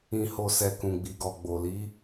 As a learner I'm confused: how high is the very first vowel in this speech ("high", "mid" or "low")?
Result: high